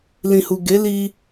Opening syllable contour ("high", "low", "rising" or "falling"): low